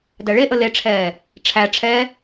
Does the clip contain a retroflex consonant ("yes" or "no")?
yes